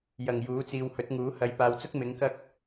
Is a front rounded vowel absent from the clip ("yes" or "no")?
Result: yes